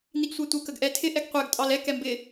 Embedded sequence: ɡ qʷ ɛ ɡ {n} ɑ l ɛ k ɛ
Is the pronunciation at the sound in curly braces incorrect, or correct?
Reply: incorrect